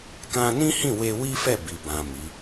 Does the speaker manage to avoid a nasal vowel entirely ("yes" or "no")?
no